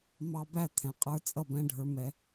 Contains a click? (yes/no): no